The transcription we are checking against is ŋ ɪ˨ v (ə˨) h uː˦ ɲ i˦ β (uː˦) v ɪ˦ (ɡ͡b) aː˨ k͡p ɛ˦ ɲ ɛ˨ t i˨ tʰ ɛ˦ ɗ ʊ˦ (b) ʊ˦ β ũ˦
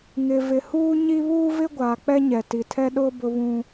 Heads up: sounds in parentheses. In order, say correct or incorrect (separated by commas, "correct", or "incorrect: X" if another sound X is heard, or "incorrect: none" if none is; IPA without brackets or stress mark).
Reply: incorrect: ɪ˨, correct, incorrect: ɡʷ, correct